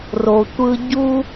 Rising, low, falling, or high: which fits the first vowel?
low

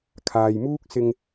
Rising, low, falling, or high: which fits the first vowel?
low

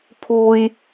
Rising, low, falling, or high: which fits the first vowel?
high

